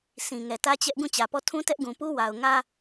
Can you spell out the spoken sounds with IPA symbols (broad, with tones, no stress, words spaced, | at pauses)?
sʰĩ˨ ŋɛ˨tä˦t͡ɕɛ˦ʔ ɡũ˦˨t͡ɕä˨pɔ˦˨ tʰũ˦tɛ˦ʔɡũ˨pu˦ wa˨ʊ̯ŋä˦